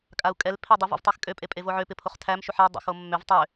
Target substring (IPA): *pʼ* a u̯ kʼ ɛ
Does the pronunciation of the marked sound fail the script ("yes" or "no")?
yes